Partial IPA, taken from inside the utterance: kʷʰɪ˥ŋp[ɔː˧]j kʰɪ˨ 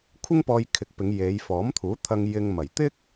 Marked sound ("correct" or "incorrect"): correct